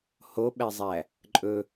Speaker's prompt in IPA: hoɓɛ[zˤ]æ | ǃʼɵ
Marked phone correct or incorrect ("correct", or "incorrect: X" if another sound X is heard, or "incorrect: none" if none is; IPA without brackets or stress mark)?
correct